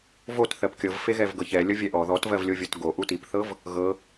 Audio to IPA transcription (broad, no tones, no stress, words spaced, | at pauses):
vot θɜpkʲɤvfe ɣɛvɡɤçɛ lʲɤvʲɛʔɔ ðɔtvɜvlʲovʲɤt ɡo ʔutipθɤv | ɣɤ